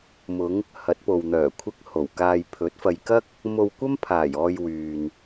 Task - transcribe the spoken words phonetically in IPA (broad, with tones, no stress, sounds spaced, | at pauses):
m ʊ˨˧ ŋ | h ɐ˨˥ t̚ p o˨ w n̪ œː˨˩ kʷʰ ɪ˨˥ k̚ h o˨˩ w k aː˧ j pʰ ɵ˨˥ t̚ f ɐ˧ j k ɐ˥ k̚ | m o˧ w kʷ ɐ˥ m pʰ aː˨˩ j ɔː˧ j w yː˨ n